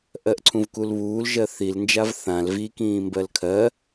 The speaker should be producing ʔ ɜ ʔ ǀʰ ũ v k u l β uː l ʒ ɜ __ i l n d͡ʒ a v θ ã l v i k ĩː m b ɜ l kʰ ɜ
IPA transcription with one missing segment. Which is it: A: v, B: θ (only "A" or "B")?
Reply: B